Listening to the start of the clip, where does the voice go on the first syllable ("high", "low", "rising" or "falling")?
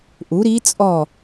rising